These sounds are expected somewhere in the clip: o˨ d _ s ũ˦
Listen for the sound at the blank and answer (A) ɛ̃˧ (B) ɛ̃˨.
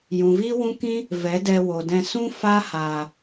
A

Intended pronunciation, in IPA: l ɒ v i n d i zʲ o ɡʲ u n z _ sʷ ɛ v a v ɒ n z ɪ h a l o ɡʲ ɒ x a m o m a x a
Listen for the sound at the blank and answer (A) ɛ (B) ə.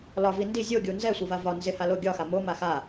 A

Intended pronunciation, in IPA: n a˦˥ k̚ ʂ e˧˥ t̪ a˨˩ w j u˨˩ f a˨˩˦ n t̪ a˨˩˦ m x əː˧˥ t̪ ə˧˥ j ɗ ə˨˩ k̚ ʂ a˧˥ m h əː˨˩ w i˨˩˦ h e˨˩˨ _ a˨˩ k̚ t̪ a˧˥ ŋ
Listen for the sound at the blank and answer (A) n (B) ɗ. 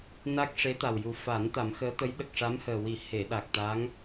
B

